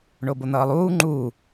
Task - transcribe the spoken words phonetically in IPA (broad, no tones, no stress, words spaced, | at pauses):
ɳobon̪ʌːlˠuː ŋ͡ǃuː